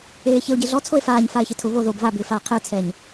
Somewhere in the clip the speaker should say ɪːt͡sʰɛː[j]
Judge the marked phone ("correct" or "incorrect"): incorrect